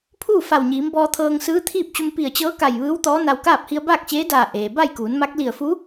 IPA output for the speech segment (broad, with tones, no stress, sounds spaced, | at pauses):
pʰ uː˥˨ f a˧˩ w ɲ iː˩˧ m b ɔː˧ t̪ʰ ɤː˧ ŋ s ɯː˧˥ t̪ʰ iː˥˨ p̚ t͡ɕ u˧ m p i˧˩ ə̯ t͡ɕ ɤː˧˥ k a˧˩ j ʋ ɯː˧˥ w t̪ ɔː˧˥ n a˧ w k aː˥˨ p̚ h i˧ ə̯ b aː˥˨ k̚ t͡ɕ eː˧˥ d aː˧˩ ʔ eː˩ b a˥˨ j k uː˩˧ n m a˧˥ k̚ l i˧˩ ə̯ f u˧˥